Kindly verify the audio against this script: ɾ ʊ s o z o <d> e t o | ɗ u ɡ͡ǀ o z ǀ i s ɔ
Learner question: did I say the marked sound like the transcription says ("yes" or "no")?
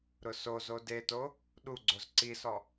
yes